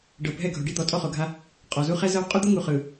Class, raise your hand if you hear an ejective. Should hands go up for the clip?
yes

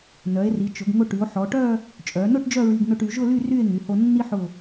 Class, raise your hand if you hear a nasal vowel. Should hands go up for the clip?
no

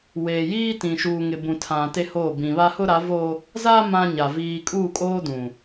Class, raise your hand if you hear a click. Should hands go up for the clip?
no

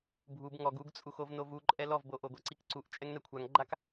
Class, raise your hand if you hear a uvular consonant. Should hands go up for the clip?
no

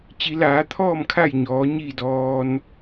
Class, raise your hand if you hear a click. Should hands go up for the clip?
no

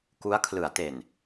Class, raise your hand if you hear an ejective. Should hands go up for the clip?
no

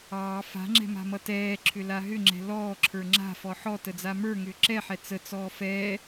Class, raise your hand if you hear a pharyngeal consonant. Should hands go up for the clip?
yes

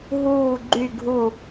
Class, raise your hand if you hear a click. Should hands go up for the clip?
yes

